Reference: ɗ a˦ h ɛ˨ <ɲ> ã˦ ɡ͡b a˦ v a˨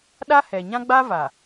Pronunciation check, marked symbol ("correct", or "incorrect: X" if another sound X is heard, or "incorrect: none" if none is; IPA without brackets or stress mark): correct